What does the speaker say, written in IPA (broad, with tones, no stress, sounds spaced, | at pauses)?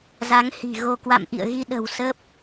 z a˨˦ ŋ h i̤˨˩ ɣ o˧ k w a̰˧˨ m ʔ ḭ˧˨ ə̯ ɣ i˧ ɗ ə̤˨˩ w s ə˦˥ p̚